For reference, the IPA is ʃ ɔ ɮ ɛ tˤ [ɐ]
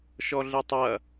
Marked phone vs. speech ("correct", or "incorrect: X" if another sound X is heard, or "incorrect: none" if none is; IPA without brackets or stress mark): correct